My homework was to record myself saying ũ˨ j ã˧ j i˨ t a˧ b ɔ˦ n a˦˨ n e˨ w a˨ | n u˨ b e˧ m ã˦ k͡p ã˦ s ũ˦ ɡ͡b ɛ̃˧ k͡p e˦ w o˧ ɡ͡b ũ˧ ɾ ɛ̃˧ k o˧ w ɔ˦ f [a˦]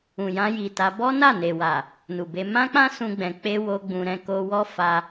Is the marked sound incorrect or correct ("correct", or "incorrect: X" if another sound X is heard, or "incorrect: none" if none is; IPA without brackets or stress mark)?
incorrect: a˧